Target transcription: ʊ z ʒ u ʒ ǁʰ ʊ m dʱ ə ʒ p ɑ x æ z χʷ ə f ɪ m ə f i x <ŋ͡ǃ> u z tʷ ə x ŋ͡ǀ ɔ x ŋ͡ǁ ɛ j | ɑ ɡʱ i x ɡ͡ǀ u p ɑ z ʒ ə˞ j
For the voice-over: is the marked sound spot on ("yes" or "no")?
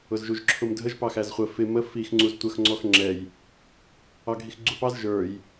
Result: no